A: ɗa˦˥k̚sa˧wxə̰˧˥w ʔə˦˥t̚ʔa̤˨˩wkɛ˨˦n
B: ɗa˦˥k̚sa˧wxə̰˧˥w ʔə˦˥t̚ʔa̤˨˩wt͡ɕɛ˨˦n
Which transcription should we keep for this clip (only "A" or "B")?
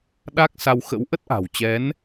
B